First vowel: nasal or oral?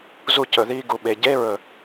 oral